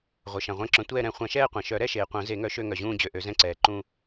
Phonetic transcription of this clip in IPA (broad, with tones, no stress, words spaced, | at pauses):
ʁʷœ˩ʃã˩ʁʷɛ̃˦˨ǁœ̃˨˩˦ tʷɛː˦˨ɾɛ̃˨˩˦ χʷã˨˩˦ʃɛː˦˨qʷã˩ʃœ˨˩˦ ɾɛ˦˨ʃeː˩ qʷœ̃˨˩˦ze˨˩˦ŋœ˨˩˦ʃø˦˨ ŋœ˩ʑũː˦˨d͡ʑø˩ʔø˨˩˦ zɛ̃˦˨ǀɛː˩ǃũ˦˨